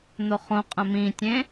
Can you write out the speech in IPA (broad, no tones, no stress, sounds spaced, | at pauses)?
n̪ o χ õ qʼ ə̃ m ĩ tʲ ẽ